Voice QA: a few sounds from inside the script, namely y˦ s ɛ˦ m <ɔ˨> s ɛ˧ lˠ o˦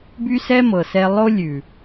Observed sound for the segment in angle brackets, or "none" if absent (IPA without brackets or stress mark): ɤ˨